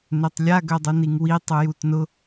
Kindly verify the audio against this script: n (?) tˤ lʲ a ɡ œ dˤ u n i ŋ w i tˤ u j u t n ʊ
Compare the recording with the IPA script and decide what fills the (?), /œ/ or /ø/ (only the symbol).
ø